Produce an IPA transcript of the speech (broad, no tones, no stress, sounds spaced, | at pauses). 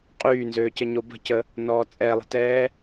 qʼ yː n z øː c ə ɲ o b ə̤ c ə | n ɔː t͡sʼ ɛ lˠ ə̤ t ɛː